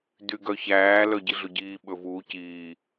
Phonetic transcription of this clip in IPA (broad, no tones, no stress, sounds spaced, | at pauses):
d y ɡ œ ç æː l œ ɟ i ɮ ɵ ɟ iː ɓ ɵ v uː c iː